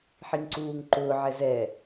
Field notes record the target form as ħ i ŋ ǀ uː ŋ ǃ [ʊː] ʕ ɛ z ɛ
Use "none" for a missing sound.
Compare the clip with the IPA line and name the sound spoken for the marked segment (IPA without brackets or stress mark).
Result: ʊː